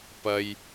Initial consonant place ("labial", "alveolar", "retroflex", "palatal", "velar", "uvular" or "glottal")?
labial